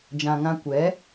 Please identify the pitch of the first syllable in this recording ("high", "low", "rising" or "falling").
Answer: low